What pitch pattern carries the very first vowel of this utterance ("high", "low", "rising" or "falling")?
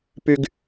high